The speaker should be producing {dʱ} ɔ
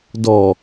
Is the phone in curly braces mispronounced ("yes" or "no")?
yes